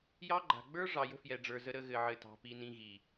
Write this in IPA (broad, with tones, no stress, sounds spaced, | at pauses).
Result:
j ɑ˦ ɡ͡ǃ a̤˨ ɡ͡b ə˞˦ ʐ ɑ˨ j ə̤˦ f j ɛ˨ ɖ͡ʐ ə˞˨ z ə˨ ɾ ə˨ ɣ ɘ˨ ʕ ɘ˨ t ɑ̤˨ p i˨ n ĩ˨ ɣ i˨